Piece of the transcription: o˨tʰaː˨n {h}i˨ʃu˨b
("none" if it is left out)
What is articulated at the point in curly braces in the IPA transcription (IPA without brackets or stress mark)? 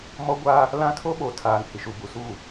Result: h